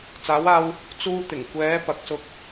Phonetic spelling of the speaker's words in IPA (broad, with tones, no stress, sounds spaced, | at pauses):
t͡s aː˨˧ w aː˧ w | t͡s uː˧ t̪ ɪ˨˩ ŋ kʷ ɛː˨˧ p ɐ˨ k̚ s ʊ˧ k̚